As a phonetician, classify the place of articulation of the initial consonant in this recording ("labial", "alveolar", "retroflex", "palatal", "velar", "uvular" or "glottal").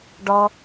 retroflex